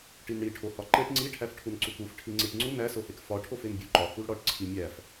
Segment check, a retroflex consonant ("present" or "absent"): present